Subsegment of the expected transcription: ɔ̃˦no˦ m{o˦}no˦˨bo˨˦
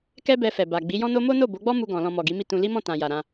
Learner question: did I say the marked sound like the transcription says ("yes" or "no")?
yes